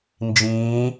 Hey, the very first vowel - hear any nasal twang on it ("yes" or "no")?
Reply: yes